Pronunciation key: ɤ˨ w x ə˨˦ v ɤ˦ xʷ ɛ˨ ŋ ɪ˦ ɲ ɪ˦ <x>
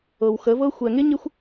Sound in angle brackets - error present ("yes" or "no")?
yes